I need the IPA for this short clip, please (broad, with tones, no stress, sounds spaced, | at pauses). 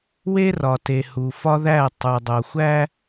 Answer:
w e˦ r ɒ˨ t e˨ h u˨ f ɒ˦ ð æ˦˨ tˤ u˨ dˤ o˨ xʷ æ˦